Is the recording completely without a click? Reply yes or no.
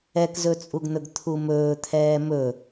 yes